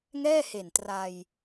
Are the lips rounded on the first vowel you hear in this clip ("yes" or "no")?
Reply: no